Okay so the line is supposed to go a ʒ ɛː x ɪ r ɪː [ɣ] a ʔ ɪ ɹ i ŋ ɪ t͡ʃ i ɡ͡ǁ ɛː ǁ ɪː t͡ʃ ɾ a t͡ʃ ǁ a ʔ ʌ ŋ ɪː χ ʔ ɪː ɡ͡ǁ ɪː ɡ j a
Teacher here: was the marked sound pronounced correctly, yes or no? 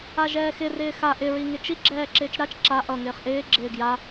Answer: no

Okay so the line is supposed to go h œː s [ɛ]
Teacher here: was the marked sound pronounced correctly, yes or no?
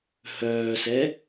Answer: yes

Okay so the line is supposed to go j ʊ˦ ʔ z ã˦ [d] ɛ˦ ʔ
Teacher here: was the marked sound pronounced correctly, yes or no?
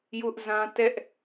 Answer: no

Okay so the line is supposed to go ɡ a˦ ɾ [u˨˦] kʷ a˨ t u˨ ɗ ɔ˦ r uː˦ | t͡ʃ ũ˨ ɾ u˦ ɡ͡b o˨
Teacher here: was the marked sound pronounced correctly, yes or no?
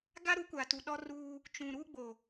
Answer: yes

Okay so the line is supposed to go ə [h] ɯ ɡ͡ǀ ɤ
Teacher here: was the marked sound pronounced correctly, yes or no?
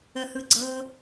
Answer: yes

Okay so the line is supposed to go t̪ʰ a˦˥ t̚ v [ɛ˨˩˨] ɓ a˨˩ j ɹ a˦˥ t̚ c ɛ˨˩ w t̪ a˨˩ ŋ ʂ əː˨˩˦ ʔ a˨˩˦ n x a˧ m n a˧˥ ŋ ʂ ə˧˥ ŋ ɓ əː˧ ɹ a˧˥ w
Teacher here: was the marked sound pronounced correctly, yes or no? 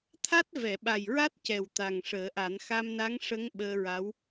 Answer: yes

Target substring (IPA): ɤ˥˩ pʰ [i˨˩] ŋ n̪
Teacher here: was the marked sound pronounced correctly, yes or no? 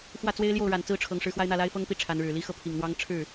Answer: yes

